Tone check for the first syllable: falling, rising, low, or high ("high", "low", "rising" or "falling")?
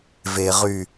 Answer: low